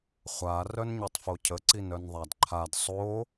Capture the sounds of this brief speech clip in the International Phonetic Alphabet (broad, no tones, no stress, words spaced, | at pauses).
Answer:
χʷa rœnɲetˤfocʰə ǀinœnðˤadǃʰad sˤo